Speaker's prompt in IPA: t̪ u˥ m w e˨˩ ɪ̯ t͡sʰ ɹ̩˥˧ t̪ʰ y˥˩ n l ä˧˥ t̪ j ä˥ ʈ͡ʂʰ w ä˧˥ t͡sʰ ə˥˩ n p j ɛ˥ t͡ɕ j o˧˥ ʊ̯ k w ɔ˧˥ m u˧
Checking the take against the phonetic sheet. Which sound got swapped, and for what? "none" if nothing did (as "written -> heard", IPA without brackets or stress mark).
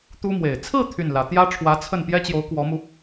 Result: none